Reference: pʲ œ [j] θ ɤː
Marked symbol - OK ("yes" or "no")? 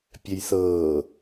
yes